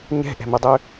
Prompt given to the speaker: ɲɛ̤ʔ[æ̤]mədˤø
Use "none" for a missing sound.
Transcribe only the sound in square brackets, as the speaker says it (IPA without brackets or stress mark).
ɛ̤